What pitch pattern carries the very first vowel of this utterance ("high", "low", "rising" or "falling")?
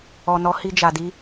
low